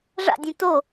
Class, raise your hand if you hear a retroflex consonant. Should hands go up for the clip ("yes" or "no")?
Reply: yes